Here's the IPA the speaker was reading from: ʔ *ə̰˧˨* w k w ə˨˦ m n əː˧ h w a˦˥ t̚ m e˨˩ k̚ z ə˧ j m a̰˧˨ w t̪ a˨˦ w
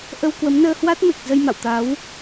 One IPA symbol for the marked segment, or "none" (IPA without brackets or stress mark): ə˧